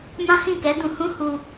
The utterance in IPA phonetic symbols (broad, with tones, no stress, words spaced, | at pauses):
mã˦hĩ˦˨kɛ˨˦ dũ˧hũ˦hu˧